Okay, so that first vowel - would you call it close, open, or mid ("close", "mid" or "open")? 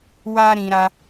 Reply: open